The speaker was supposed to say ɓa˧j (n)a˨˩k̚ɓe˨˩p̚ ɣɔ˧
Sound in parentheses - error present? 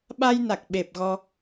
no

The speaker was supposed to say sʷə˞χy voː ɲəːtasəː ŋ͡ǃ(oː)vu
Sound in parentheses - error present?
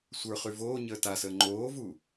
no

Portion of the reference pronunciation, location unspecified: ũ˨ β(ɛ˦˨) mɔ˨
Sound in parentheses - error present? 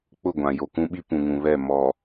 no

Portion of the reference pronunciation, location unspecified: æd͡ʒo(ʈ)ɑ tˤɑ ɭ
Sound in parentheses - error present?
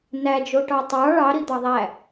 no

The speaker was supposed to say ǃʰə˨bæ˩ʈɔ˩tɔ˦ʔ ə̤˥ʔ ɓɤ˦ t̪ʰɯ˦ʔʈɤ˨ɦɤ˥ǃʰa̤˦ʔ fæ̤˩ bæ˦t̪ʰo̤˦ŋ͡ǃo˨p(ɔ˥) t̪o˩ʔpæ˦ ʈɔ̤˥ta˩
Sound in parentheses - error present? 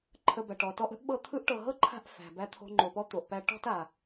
no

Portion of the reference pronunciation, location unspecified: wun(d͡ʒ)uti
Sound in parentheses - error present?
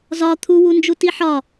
no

